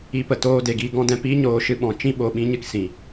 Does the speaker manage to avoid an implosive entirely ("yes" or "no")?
no